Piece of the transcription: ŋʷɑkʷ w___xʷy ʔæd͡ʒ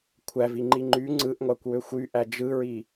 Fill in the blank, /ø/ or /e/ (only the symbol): ø